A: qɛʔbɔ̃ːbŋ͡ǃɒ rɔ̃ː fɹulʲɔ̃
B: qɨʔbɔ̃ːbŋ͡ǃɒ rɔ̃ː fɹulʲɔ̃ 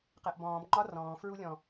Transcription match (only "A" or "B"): A